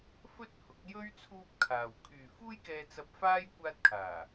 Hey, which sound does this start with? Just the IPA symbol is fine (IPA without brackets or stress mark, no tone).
f